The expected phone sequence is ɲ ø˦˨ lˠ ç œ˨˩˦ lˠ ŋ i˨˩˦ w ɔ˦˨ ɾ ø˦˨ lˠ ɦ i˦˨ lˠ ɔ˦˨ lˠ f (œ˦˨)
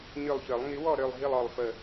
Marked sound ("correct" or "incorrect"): incorrect